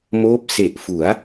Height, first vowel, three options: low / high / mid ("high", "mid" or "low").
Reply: mid